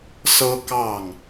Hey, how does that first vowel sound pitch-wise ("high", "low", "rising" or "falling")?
high